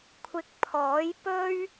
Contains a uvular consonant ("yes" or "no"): no